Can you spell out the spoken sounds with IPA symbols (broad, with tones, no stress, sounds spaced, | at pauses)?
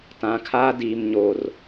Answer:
t ã˨ kʰ aː˦ d iː˨ m ɲ oː˨ r